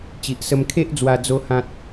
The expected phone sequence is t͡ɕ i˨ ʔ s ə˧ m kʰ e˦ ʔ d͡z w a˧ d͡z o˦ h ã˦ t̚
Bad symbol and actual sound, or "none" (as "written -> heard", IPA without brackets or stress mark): none